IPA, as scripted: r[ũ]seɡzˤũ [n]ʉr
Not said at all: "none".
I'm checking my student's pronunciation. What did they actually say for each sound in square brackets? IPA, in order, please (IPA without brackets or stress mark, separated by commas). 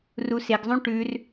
u, ʈ